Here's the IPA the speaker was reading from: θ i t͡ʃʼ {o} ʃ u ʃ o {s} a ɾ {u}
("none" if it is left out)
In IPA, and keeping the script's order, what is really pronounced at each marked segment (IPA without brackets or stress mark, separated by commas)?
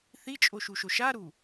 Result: o, ʃ, u